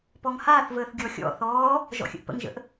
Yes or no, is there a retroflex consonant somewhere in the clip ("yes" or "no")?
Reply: no